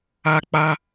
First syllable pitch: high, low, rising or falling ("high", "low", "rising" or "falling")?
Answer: low